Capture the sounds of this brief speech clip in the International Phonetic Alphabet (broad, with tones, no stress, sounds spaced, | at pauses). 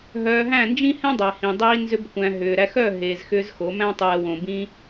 ɦ œː˧ ɦ æ̃˦˨ n d͡ʒ ĩ˦ h ɛ̃˦ dˤ æ˨ h ĩ˨ dˤ iː˧ n z ʏ˦ b kʷ æ̃˧ ɦ ʏː˨ ɾ æ˧ x œ˦˨ ɦ eː˨ z x ʏː˧ z x o˨˦ m æ̃˦ tˤ ɛː˨ w õ˨ b ĩ˧